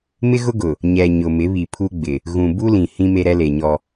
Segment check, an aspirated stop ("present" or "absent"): present